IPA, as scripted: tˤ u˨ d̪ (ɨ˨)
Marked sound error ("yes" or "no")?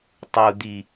yes